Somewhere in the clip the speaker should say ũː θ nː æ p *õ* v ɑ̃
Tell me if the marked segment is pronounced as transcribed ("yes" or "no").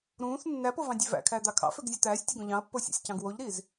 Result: no